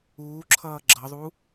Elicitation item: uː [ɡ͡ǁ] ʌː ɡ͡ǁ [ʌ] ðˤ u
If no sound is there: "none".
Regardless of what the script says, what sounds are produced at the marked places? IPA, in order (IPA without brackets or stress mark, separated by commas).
ǁʰ, ʌ